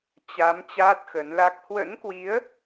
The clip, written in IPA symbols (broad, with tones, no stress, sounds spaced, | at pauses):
t͡ɕ a˨˦ m t͡ɕ aː˦˥ t̚ x ə˨˦ n l a˦˥ k̚ h w ə̰˧˥ n k w i˨˦ ə̯